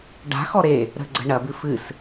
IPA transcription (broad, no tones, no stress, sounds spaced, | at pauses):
ɖ a̤ x ɔ ɾ e | ɾ ə̤ ɡ͡ǀ ə̤ ɳ ɐ b ɨ f ɨ s